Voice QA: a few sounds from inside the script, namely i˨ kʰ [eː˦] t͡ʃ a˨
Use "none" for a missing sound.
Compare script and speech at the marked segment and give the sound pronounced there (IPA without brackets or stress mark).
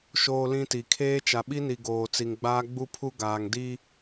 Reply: eː˦